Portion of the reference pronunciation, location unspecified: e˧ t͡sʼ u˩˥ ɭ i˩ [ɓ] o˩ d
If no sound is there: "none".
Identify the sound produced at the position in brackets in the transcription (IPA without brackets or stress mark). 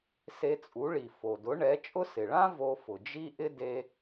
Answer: f